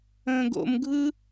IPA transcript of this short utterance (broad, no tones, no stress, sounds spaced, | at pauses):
ə̃ː ɡ o̰ m ɡʱ ɯ